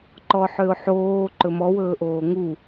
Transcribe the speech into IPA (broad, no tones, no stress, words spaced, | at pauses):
ǃɔħøʊ̯ħoː ǃɵmɔ wɵːʔoːŋu